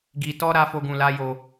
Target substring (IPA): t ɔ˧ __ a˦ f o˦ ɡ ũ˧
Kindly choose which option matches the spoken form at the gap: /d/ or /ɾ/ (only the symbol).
ɾ